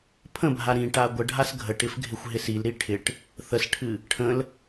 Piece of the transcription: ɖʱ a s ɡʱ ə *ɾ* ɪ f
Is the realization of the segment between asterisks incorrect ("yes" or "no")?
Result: yes